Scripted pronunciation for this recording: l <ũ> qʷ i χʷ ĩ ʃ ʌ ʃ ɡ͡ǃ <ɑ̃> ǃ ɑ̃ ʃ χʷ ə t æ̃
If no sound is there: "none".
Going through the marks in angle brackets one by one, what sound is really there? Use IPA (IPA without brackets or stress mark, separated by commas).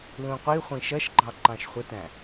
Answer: ũ, ɑ